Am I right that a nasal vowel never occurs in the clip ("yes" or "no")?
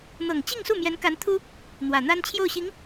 yes